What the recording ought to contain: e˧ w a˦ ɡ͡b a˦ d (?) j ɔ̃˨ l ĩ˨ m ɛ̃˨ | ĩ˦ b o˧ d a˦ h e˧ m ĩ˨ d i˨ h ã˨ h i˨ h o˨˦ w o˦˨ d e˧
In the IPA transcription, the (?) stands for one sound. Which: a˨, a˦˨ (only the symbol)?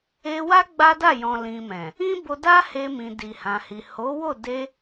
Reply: a˦˨